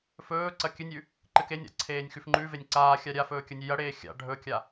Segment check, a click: present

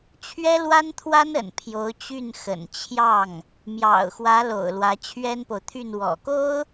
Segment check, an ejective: absent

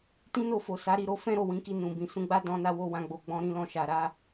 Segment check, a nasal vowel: present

